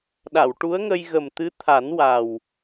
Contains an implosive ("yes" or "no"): yes